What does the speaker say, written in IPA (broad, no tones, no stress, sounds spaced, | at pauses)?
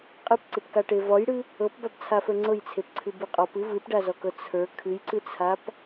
qʼ ɨ p ǀ ɨ p k a ʈ e v ɔ j ɽ ɨ | ɤ p b a b t͡sʰ a f ə˞ ŋ͡ǀ ɤ j t͡sʰ e p ǀʰ ɨ b ɨ qʼ ɔ p ɨ v ɨ p ɖ a z ɔ k ɤ t͡sʰ ə˞ kʰ ɨ j ǀ ɨ t͡sʰ a p